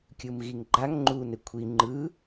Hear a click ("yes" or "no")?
yes